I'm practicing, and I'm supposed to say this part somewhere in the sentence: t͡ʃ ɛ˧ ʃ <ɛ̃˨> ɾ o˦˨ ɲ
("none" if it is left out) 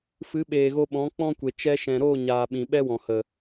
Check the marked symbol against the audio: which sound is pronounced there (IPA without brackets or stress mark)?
ɛ̃˨